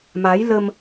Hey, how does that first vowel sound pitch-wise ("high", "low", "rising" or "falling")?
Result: rising